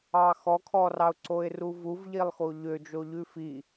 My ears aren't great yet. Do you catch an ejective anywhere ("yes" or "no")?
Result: no